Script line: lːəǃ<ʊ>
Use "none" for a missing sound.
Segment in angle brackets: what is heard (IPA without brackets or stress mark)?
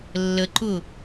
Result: ʊ